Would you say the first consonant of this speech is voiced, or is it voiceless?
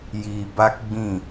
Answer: voiced